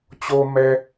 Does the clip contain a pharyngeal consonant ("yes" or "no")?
no